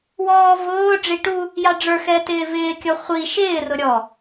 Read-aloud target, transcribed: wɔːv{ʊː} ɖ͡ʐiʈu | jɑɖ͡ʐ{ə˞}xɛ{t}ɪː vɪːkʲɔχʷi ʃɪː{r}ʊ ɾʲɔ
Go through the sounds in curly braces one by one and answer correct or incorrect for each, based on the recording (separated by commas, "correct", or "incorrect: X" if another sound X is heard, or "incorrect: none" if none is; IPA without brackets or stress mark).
correct, correct, correct, correct